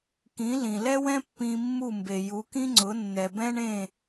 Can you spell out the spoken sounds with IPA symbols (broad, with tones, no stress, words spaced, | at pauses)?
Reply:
kĩ˩˥lĩ˩lɛ˥wɛ̃˥ pːĩ˧mːu˥˩ mbe˩ju˩˥kĩ˥ŋ͡ǀʊ˩˥ nːɛ˩bɛ̃˥ɳẽ˥˩